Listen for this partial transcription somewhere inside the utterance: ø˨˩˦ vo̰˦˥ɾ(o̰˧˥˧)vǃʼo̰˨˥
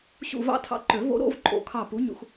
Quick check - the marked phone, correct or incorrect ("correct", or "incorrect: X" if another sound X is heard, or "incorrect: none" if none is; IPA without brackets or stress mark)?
correct